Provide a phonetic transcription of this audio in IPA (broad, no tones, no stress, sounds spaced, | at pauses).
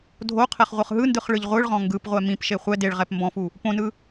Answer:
dʱ o qʰ ɛ χ ʁʷ ɯ χ ɦ ɯ n d ɯ χ ɭ ɯ ʎ ʁʷ ɯ ɭ ʁ ɔ̃ ŋ ɡ ɯ p ʁʷ ɛ m ĩ p ʃ e χʷ ɛ d e ɭ ʁ ɛ p m b ɔ̃ f u | p õ n ɯ